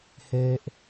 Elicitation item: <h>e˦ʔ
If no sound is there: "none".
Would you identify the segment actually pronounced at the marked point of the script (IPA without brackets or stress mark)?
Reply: h